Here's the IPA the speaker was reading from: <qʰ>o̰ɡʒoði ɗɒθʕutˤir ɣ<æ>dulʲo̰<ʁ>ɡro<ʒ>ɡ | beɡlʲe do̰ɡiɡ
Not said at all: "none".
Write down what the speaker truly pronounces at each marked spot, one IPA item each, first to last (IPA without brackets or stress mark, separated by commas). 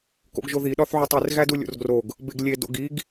k, æ, r, none